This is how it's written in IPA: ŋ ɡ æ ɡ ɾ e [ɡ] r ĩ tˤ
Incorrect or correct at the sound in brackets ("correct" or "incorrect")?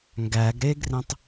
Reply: correct